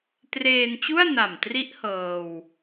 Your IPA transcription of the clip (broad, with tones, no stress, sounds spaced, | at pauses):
t r eː˧ n t͡ɕ u˥˩ a̯ n a˨˩ m t r i˦˥ ʔ h ɤː˧ w